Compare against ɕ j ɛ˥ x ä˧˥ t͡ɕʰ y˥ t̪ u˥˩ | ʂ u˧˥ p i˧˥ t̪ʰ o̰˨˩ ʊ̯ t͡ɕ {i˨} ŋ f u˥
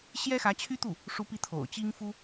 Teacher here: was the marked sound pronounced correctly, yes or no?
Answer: no